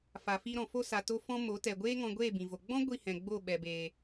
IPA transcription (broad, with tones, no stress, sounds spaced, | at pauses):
f a˨ f i˧ ɾ ɔ̃˨ f o˦ s a˨ t o˧ f ɔ̃˧ m o˨˦ t ɛ˨ ɡʷ eː˦ ŋ ɔ̃˧ ɡʷ eː˦˨ b ĩ˨ v o˨ ɡ͡b ɔ̃˦ ɡʷ i˦˨ h ɛ̃˨ ɡ͡b o˦˨ ɓ ɛ˨ b eː˨